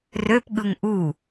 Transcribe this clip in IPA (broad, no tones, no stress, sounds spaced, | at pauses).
r ø p ɠ ɯ ŋ ʔ u